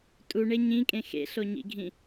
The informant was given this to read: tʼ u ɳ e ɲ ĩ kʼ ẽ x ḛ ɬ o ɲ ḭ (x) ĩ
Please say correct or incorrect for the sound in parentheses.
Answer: incorrect